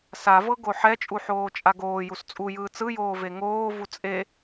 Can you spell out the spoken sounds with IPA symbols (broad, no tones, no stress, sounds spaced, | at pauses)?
s a v ɤ ɡ o ħ ɛ t͡ʃʼ u ħ oː t͡ʃʼ a ɡ oː j u s t͡sʼ u j ɯː t͡s ɯ j oː v e ŋ oː v u t͡sʼ e